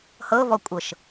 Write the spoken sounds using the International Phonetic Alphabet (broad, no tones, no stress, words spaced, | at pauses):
hɤvɔkʷʼɤʃ